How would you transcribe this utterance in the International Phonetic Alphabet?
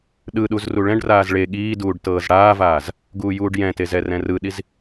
ɗ ɯ ɗ u z r u ɭ ɛ̃ ɖ r aː z ɭ e ɠ iː d uː ɖ t ɤː z ɽ aː v aː z | ɡ uː j uː ɖ j ɛ̃ t e z ɛ r ɛ̃ r ɯ ɗ i z

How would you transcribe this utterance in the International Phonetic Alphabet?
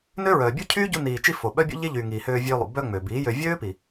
n ø˦ ɹ œː˨ bʲ u˦ cʰ yː˦ ɟ u˧ n iː˨ t͡ʃ i˧ f o˨ ɓ œ˦ bʲ o̰˦ ʎ e˦ ʎ yː˨ ŋ iː˨ h øː˧ vʲ øː˧ lˠ ṵ˨ b œ˧ ŋ͡m ø˨ b iː˨˦ j ø˧ vʲ øː˦ p i˨

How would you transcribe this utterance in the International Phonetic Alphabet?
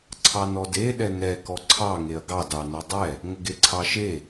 ǀʰ ɑ n ɔ d e ɗ ɛ n ɛ k ɔ ǀʰ ɑ ŋ e ɐ̯ ɡ ɑ d ɑ n o dˤ ɛ | ŋ ə ɡ e ǀʰ ɑ ʃ e

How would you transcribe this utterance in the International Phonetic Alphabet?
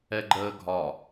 ɛ ɡ͡ǃ əː ɡʱ ɒ

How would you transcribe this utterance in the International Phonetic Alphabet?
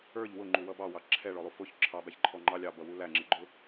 ə˞ ʎ w ʊ ŋ͡ǃ u w ʌ b ɑ w ɑ ǁʰ ɛ ɭ ɔ lˠ u f ʊ ç ǁʰ ɑ b æ ç ǃʰ ɔ ŋ͡ǃ ɑ lʲ ɑ b ʌ w u l æ ŋ͡ǁ ɪ ɡ͡ǃ ʊ

